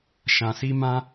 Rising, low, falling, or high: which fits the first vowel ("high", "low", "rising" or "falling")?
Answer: low